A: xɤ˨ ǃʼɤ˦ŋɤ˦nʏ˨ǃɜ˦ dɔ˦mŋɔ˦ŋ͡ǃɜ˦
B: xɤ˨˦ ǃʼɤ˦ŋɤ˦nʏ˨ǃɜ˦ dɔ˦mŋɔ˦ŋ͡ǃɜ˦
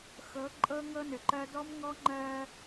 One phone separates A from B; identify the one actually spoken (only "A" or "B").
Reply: B